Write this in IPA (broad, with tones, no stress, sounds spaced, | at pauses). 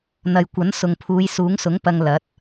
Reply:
n̪ ɐ˨ j kʷ ɐ˨˥ n s ʊ˨ ŋ pʰ uː˨˧ j s uː˨˥ ŋ s ʊ˨˥ ŋ p ɐ˧ ŋ l ɐ˨˥ t̚